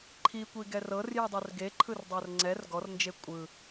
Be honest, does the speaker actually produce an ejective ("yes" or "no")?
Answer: yes